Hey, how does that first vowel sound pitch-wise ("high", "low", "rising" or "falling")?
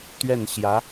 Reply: falling